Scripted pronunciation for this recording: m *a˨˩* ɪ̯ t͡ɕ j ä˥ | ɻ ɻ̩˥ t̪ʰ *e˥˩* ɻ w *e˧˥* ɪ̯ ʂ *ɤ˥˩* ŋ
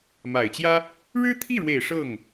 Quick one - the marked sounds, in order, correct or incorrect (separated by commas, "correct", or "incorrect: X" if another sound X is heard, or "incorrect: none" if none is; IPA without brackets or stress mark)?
correct, incorrect: i˥˩, incorrect: e˨˩, correct